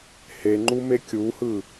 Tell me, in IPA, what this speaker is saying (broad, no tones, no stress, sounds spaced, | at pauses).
h e ŋ͡ǃ u m e kʲ u h ɯ